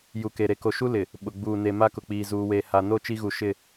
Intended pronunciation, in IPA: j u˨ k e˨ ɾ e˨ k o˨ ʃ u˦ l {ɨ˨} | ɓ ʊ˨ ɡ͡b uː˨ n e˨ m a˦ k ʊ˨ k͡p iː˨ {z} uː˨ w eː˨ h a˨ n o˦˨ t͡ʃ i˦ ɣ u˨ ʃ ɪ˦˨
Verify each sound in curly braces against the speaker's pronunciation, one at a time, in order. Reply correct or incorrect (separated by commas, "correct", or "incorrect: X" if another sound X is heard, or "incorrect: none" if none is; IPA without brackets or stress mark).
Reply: incorrect: ɪ˨, correct